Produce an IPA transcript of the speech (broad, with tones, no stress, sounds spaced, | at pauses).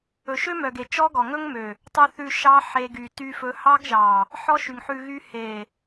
ɵ˨ ʃ ø˦ m œ˨ ɡ e˨ t͡ʃ ɔ˦ ɡ ɔ˨ ŋ ɵ˦ ŋ m ø˨ | tˤ ʉ˧ θ ʉ˧ ʃ ɑ˦ ħ e˧ ɡ y˨ t y˧ f ɵ˧ h ɑ˦ ɡ ʒ ɑ˨ | ħ ɔ˦ ʃ y˨ ŋ ħ ʉ˨ ɣ y˧ h e˨